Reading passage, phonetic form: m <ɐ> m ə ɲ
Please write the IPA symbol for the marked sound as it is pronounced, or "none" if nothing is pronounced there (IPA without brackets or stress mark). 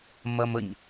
ɐ